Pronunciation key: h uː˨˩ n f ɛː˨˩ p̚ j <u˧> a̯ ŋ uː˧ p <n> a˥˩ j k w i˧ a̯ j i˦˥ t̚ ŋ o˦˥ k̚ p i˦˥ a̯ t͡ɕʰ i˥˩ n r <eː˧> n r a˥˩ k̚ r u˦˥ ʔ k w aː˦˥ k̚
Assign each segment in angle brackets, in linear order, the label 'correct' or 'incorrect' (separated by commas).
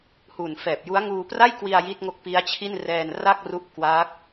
incorrect, incorrect, incorrect